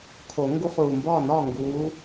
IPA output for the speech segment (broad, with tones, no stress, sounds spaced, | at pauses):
kʰ o˨˩˦ ŋ ɡ u˦ χ uː˨˩ m b ɒː˥˩ n ɒː˥˩ ŋ ɡ uː˨˦